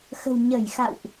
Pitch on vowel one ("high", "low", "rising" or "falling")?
low